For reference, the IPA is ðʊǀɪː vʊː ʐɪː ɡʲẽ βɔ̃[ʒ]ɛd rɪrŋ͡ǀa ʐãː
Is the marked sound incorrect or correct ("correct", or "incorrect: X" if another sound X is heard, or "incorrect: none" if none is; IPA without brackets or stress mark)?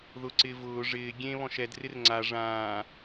incorrect: ʃ